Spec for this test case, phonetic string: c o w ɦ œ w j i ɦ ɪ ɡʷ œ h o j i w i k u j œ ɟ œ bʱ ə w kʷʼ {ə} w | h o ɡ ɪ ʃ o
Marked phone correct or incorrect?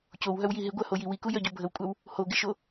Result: incorrect